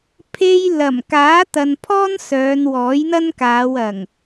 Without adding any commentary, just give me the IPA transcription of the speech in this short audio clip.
pʰe˧j lɐ˨˩m kaː˨˥t̪ɐ˨npʰɔː˥n sœː˨˧nwɔː˨˥jn̪ɐ˥nkaː˨˧w ɐ˨˩ŋ

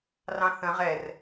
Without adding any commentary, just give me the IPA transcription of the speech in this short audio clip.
rɑ̃θə̃ ʁɛr

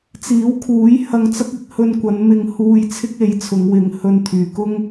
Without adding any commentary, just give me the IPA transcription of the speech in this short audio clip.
t͡siː˨˥wkʰuː˨˥j hɐ˧ŋt͡sɐ˥k̚ɪ˨˥k̚ hɵ˧nkʷɐ˨˧nmɪ˧ŋhuː˧j t͡sʰɪ˥k̚e˨˥jt͡sʰʊ˨˧ŋ wɪ˨˧ŋ hɵ˧nt̪ʰyː˨kʊ˥ŋ

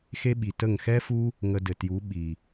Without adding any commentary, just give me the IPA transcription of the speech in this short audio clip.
xe˦ɓi˨tə˦˨ŋ xɛ˦fu˦ | ŋə˧dɘ˨tju˨˦ ɓi˨

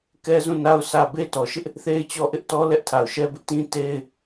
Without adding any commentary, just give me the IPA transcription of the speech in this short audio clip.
kɛ˦zũ˦˨na˦ʊ̯ sʰä˦˨ be˦tɔ˨ʃɪ˦ʔ | θe˦ɪ̯t͡ɕɔ˦˨ʔɪ˦ʔ tɔ˦ lɛ˦ʔtʰa˨ʊ̯ʃɛ˦bɪ˦ʔ tĩ˦te˦ɪ̯

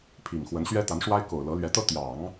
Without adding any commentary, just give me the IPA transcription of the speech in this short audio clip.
pʰi˨˩ŋxwə˧˥nɕɥɛ˥ t̪a˧˥nʂwa˥ɪ̯ko˨˩ʊ̯ lɤ˧˥lɥɛ˧˥t̪ɤ˥ t̪jɑ˨˩˦ŋ

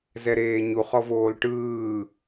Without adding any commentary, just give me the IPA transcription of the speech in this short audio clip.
zɛɾeːɲu χɔvoːlʈɯː

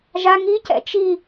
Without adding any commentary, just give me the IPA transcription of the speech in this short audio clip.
ʒa ŋicɛ̰ t͡ʃi

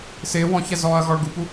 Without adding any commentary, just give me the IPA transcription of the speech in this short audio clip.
sɪː wɔ̃çɛ zɔːɐ̯ɣɔɭɡupu

